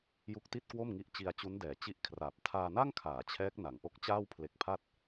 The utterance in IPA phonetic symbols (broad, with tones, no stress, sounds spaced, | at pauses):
j u˦˥ k̚ t i˥˩ t̚ k w o˥˩ m ŋ i˦˥ ʔ t͡ɕ i˧ a̯ t͡ɕ u˦˥ n d ɛː˩˦ t͡ɕ i˥˩ ʔ kʰ r aː˨˩ p̚ tʰ aː˧ n a˥˩ ŋ kʰ aː˩˦ t͡ɕʰ ɛː˦˥ k̚ n a˩˦ ŋ ʔ o˦˥ k̚ t͡ɕ aː˥˩ w pʰ l e˨˩ k̚ pʰ a˥˩ t̚